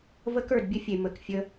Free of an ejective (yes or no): yes